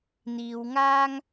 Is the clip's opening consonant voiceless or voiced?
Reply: voiced